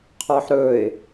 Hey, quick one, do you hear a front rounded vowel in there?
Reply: no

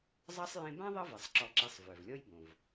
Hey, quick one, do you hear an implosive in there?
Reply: no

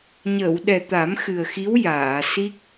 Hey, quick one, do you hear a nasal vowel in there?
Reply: no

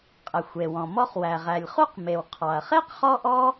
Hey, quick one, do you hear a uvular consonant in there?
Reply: yes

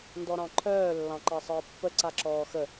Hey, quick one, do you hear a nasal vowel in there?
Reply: yes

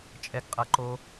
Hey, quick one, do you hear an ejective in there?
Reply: yes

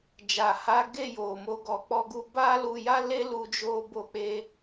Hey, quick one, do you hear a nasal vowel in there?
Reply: no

